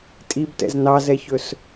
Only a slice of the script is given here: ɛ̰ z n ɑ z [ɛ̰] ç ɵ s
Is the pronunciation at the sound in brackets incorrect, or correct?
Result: incorrect